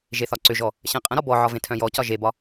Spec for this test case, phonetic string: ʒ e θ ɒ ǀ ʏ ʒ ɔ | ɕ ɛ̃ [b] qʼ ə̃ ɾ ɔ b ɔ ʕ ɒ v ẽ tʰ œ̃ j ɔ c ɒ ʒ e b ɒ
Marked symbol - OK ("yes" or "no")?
no